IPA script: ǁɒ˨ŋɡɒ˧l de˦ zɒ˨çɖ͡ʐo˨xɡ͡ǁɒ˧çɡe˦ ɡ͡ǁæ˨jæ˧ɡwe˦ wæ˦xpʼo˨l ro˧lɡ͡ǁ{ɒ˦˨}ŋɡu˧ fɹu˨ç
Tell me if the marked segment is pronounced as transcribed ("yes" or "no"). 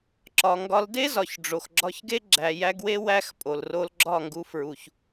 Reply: yes